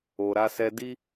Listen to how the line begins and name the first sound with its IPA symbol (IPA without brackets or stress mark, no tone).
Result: o